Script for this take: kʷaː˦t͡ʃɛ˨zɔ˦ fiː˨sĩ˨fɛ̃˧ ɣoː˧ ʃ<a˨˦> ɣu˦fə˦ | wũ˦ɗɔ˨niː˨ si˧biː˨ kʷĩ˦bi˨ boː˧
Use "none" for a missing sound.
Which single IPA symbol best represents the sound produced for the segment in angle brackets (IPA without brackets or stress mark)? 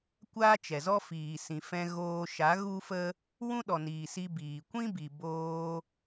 a˨˦